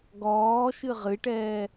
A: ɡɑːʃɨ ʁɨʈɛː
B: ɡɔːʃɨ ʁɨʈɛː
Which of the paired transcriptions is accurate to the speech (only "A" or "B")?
B